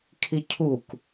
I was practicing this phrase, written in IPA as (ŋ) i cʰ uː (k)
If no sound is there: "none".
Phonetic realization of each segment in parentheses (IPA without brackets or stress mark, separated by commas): kʰ, k